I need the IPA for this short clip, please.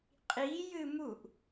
qʼ i j ɨ m u ʔ

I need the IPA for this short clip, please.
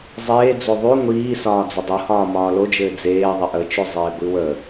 zˤ eː d͡z o ðˤ y ŋʷ iː s ɒː d͡z ə dˤ o h ɒː m ɒː l o d͡ʒ ɘː d͡z eː ðˤ e ʔ ə t͡ʃ ø zˤ eː ɡʷ i w ə

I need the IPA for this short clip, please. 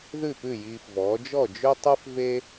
ð ʉ˥˩ p ʉ˥˩ j iː˧ f v ɔː˩˥ d͡ʒ ɔ˥˩ d͡ʒ ø˥ tˤ ʉ˥ f v e˥

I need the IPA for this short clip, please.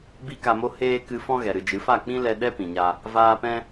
b i˦ k a˧ m o˦ h eː˦ k ɨ˧ f ɔ̃˦ ɣ ɛ˨ ɾ ɨ˨ d͡ʒ ɨ˨˦ f a˦˨ k͡p ĩ˦ l ɛ˧ ɗ ɛ˦ p ĩ˨ ɲ a˧ | v aː˧ p ɛ̃˦

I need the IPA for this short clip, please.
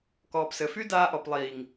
k ɔː˨ p s ɘ˨ f y˦ d aː˧ ʔ ɔ˨ p lˠ iː˨ ŋ

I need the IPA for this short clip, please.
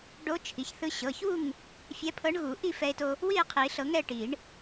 ɖ o˧˥ t͡ʃʰ i˩˧˩ ç θ ɯ˧ ɕ ɤ˩˧˩ ç u˥˨ ŋ | fʲ ɛ˧˥ pʰ ɤ˧˥ ɳ ɣ u˨˩˦ ʔ i˥˨ f ɛ˧ e̯ t o˧ | w i˥˨ e̯ qʰ i˨˩˦ ɬ ɤ˨˩˦ ŋ ɛ˥˨ ʈ i˨˩˦ ɳ

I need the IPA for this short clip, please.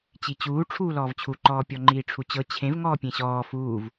t͡ɕ i t͡ɕ uː ʈ͡ʂʰ uː l ɔː v t͡ɕʰ u ǃ ɔː pʲ ɔ ŋ͡ǃ iː ʈ͡ʂʰ u t͡ɕ ɤ t͡ɕʰ ẽ v ŋ ɔː pʲ ẽ ɕ ɔː f uː v

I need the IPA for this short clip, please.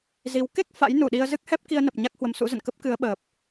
z i˨˦ w k e˦˥ k̚ f a̰˧˥ j n u˧˩ ɗ i˧ ə̯ z ɨ˦˥ k̚ h ɛ˦˥ p̚ k i˧ ə̯ n ə˨˩ p̚ ɲ a˦˥ k̚ h w ə˨˦ m s ṵ˧˥ z ə̰˧˨ n k ə˦˥ p̚ k ɨ˨˦ ə̯ ɓ əː˨˩ p̚

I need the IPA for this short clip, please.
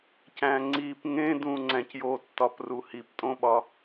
c æ̃ ŋ͡ǀ i p ŋ ẽ d ũ ŋ͡ǀ æ̃ c j o tː ɒ p r u h i p tʼ õ ɓ ɒ

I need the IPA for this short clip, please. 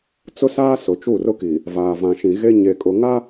t͡s ʊ˦ s aː˦ s ʊ˨ t͡ʃ u˦˨ r ʊ˦ k iː˨ | v aː˨ v ã˨ ʃ ĩ˨ ɣ e˦ ɲ e˨ kʼ ʊ˨ ŋ a˦

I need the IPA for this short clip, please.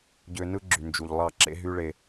ɟ ø˧ n ɯ˦ ɡ͡ǁ y˨ n d͡ʒ u˨ ʎ lˠ ɑ˦˨ ǁ ḛ˦ ɦ y˦ ɭ e˧

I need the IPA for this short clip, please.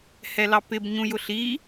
h ɛ l ɑ p ɪ b ɲ ũ j ʊ ɬ i

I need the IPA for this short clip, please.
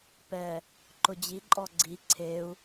p ɛ | ǃ ʊ d͡ʑ i ǃʼ ɔ ɡ͡ǀ i ǀʰ e u̯

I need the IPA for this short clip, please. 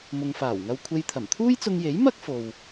m ʊ˨ ŋ f aː˨˩ w ŋ ɐ˧ w kʷʰ e˧ j t̪ʰ ɐ˨˩ m t̪ʰ uː˥ j t͡s ʊ˧ ŋ j e˨˥ j m ɐ˥ k̚ f o˨ w

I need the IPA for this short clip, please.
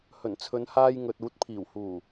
h ɵ˨˩ n t͡sʰ ɵ˨˧ n h aː˧ j ŋ ɵ˨ t̚ uː˨˥ t̚ pʰ iː˨˩ w h uː˨˩

